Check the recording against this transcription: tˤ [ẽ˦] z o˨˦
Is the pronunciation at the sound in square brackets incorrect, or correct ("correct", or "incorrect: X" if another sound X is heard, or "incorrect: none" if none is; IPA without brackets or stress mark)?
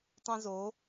correct